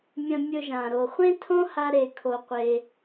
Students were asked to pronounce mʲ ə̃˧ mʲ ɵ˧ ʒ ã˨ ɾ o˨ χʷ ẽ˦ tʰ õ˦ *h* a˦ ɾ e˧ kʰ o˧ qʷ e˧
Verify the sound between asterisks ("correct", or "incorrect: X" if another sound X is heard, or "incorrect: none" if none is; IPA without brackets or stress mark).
correct